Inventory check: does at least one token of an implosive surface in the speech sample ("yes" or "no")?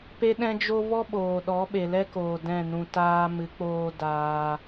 yes